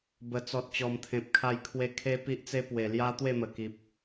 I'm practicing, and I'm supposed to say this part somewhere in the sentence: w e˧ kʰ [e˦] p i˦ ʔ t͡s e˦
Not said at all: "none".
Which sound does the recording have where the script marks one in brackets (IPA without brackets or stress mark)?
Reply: e˦